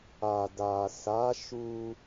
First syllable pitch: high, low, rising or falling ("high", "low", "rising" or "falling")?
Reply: low